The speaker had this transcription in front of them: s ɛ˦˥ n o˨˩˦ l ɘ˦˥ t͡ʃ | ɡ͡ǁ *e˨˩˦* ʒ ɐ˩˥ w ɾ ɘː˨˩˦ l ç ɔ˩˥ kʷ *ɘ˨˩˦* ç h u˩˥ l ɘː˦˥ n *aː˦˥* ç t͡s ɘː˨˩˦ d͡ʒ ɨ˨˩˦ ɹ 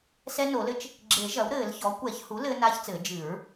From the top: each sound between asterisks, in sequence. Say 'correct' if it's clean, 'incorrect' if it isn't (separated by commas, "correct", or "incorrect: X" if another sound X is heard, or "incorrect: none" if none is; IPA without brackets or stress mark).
correct, incorrect: ɛ˨˩˦, correct